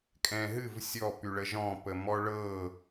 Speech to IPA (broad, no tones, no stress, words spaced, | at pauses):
kʼɛ̃ɦɨv sʲɔ pyɭəʒɔ̃ pəmɔɭɤ